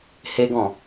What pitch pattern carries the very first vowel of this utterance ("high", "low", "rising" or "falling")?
high